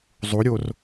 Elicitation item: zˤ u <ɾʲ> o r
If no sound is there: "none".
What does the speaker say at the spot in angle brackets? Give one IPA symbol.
ɾʲ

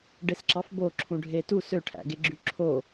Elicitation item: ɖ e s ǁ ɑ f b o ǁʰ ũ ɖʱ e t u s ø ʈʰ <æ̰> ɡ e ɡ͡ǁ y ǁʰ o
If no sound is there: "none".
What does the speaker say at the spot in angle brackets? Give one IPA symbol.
æ̰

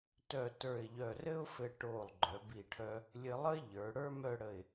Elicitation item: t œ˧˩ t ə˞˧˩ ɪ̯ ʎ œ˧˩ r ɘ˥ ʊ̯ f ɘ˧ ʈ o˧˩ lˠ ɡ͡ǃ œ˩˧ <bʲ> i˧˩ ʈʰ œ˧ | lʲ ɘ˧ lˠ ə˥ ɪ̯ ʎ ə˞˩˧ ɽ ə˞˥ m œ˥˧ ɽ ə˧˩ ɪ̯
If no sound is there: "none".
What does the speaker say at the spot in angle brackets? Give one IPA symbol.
b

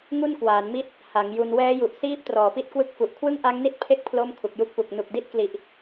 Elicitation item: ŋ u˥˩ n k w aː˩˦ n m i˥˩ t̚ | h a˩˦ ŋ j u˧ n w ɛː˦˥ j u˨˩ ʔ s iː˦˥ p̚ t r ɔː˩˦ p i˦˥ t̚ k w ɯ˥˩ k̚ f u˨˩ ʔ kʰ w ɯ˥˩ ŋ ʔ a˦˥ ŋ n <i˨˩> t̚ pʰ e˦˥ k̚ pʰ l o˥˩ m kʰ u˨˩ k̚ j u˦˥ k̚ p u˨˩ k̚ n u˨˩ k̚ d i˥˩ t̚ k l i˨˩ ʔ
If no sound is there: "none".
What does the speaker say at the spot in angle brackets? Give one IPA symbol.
i˦˥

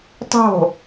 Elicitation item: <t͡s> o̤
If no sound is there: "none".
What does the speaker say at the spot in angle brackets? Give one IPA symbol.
tˤ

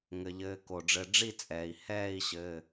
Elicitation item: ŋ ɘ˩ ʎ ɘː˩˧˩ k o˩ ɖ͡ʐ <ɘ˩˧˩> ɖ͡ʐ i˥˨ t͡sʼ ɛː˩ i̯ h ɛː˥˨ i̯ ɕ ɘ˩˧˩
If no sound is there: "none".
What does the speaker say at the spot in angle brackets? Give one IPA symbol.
ɘ˩˧˩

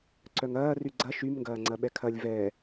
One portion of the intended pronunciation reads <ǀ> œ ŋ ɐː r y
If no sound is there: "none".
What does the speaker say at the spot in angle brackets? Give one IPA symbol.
ǀ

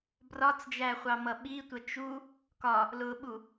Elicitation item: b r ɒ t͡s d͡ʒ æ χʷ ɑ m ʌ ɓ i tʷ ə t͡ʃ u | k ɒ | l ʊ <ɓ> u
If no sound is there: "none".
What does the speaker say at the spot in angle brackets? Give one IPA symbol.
ɓ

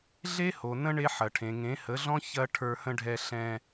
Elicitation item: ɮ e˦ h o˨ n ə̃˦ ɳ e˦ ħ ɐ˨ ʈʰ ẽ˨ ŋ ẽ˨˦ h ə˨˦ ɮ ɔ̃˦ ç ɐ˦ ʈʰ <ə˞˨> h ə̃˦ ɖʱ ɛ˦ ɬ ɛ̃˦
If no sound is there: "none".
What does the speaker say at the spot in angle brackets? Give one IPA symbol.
ə˞˦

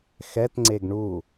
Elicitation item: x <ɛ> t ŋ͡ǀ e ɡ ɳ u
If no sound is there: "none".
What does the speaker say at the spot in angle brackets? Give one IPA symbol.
ɛ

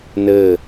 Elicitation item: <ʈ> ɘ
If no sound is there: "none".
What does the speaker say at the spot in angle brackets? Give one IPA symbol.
n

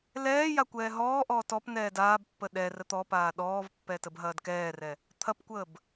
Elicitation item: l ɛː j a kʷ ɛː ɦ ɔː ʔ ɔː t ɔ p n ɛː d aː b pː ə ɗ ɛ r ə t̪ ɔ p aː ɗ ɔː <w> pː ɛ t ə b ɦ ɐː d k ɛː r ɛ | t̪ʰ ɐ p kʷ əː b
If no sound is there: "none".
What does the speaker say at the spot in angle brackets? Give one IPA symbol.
v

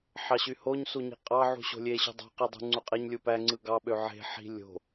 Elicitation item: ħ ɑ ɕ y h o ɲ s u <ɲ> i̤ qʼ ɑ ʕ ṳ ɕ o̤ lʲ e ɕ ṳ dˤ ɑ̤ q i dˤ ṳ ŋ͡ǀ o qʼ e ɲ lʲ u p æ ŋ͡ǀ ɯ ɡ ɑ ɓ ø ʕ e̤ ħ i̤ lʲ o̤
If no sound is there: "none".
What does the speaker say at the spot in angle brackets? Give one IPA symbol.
ɲ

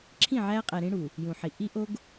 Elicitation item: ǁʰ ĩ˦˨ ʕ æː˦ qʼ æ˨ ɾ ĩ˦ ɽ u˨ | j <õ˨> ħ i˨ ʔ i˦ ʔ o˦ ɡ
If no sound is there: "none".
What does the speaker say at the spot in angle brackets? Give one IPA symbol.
ũ˨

